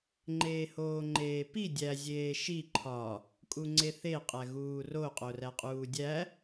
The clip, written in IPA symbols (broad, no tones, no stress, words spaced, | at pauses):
ŋ͡ǃeːhoːŋ͡ǃeːpi dʲæ zʲeːʃi ǃʰɒ | kʼuŋ͡ǀeθe qʼæɣuːro qʼoræqʼuːdʲæ